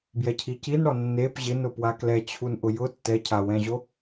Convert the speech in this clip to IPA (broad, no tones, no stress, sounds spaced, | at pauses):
b j ɛ cʰ i c i n ɽ ɔ nː e p ʑ ɪ n ʊ p w a k l ɛ t͡ɕʰ u n ʔ ʊ j ʊ tː ɛ cʰ a w ɛ̃ ʑ o